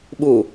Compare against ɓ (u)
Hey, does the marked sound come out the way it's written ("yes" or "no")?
yes